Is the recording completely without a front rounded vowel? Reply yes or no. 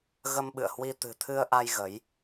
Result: yes